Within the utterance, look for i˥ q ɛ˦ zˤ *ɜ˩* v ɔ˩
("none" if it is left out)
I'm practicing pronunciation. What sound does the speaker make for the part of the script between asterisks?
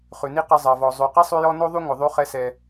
ɜ˩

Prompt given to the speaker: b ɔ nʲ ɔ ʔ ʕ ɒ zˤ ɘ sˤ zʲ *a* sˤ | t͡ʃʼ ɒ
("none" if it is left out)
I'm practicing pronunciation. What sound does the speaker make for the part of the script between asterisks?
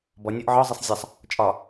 a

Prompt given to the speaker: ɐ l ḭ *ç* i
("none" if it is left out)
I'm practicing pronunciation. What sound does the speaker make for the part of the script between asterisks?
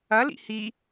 h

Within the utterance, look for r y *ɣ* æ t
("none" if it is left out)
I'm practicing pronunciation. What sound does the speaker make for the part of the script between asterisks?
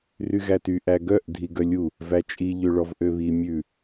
ɣ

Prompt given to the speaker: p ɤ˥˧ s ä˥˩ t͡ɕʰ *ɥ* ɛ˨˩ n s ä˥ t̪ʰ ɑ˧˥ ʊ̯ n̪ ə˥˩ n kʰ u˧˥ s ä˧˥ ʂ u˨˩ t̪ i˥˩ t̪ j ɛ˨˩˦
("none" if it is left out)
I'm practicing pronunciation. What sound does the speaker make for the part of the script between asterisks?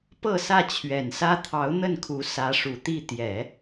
ɥ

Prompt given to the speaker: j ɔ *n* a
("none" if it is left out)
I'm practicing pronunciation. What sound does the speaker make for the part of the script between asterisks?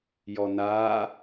n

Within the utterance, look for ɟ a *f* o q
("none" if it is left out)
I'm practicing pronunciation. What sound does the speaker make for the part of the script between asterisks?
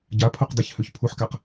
pʰ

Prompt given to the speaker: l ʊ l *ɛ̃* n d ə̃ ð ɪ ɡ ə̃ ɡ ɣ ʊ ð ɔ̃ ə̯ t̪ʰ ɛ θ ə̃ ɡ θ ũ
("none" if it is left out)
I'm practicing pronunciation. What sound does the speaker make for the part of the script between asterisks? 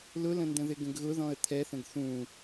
ə̃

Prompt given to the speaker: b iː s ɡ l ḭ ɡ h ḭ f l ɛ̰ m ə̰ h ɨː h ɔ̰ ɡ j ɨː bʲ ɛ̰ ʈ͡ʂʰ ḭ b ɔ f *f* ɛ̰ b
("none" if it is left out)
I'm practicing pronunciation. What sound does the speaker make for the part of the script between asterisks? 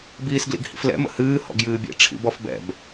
b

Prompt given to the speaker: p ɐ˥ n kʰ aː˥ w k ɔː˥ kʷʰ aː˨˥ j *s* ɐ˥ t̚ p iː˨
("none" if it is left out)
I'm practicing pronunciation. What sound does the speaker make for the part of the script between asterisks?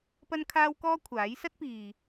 s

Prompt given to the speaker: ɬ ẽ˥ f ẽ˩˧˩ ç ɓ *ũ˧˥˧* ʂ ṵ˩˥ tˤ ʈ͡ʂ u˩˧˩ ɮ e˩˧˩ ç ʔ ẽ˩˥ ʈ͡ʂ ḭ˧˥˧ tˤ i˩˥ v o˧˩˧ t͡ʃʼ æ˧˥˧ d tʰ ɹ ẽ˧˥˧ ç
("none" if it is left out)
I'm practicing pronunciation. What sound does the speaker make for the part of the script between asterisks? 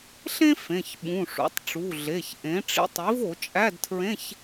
ũ˩˧˩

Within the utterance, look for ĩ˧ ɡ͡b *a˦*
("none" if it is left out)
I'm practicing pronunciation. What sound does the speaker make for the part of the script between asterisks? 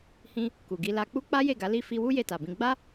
a˦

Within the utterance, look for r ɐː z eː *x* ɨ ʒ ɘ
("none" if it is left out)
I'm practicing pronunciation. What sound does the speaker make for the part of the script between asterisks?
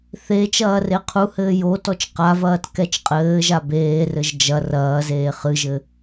χ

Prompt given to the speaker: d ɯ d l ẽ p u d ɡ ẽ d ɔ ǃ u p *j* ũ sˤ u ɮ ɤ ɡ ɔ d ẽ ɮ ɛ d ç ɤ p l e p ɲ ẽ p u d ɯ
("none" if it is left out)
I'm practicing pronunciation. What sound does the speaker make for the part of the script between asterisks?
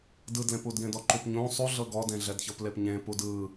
ɲ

